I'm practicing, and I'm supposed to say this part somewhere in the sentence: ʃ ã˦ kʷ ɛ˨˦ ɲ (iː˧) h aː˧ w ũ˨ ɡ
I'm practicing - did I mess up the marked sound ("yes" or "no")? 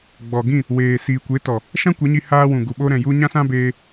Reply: yes